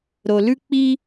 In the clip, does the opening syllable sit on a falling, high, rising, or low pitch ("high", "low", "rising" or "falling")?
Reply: low